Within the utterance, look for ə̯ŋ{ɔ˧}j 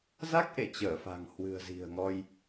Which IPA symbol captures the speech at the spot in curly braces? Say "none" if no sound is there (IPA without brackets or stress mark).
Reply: ɔ˧